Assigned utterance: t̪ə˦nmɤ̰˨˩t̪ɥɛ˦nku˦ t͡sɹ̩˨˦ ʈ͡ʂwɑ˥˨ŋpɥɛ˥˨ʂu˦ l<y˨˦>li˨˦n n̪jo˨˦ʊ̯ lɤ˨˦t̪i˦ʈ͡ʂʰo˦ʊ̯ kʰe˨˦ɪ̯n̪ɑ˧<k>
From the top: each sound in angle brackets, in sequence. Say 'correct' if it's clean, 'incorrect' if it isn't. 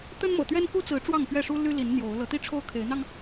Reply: incorrect: y˦, incorrect: ŋ

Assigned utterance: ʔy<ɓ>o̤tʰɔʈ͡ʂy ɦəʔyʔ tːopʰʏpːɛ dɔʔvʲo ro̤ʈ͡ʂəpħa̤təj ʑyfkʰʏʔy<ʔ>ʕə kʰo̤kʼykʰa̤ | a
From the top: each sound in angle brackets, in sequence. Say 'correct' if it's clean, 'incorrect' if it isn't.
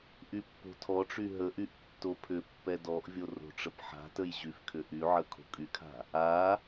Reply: incorrect: pː, incorrect: none

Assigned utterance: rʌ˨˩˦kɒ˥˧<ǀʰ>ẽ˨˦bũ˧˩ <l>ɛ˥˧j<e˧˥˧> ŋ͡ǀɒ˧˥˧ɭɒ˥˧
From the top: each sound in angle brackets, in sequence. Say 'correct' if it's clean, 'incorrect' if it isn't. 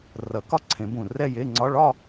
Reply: correct, incorrect: r, correct

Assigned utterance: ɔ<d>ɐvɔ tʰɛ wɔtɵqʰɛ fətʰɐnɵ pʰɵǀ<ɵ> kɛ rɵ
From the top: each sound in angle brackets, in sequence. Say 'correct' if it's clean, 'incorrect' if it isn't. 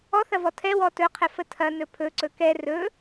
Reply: incorrect: θ, correct

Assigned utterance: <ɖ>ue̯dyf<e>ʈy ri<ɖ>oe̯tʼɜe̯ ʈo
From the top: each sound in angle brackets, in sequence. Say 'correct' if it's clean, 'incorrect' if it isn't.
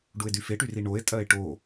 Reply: correct, correct, incorrect: ɳ

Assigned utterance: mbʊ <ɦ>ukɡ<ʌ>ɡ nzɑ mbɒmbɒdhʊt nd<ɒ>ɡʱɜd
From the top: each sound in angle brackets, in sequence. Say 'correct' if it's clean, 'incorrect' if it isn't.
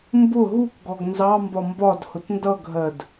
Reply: correct, incorrect: ɔ, incorrect: ʌ

